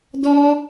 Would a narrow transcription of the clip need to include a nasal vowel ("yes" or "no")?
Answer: no